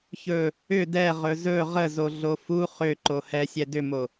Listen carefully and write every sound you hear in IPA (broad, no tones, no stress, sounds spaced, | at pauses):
ç ɵ | ʏ d ɛ ʁ ɵ z ɵ ʁ ə z o ɮ o f u χ ʏ ǃ o h ɛ sʲ ɛ d ʏ m o